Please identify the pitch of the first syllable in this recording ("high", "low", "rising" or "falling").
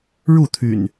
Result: falling